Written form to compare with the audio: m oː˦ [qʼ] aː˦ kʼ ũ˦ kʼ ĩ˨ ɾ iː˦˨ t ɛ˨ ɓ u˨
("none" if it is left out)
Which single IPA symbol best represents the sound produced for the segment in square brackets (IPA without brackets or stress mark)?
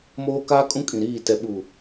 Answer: k